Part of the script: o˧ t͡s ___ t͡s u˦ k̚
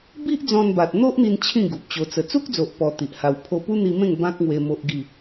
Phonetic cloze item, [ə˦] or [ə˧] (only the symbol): ə˧